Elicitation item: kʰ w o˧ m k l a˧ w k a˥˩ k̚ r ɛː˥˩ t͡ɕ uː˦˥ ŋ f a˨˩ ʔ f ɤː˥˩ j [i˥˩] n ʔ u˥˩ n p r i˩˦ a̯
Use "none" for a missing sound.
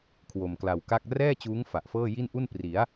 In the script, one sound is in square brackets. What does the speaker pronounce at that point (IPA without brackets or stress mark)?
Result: i˥˩